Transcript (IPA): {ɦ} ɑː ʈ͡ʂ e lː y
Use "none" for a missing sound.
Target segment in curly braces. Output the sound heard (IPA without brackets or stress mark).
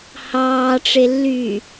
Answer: h